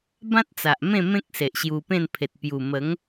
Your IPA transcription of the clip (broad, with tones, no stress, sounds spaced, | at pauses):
b ã˦ t̚ t͡s a˨ ʔ m ẽ˥˧ m ẽ˦ k̚ s e˨ ʔ ɕ j u˧ p ẽ˥˧ n pʰ e˨ t̚ p j u˨˩ m ə˨˦ ŋ